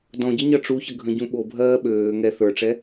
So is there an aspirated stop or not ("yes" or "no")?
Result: no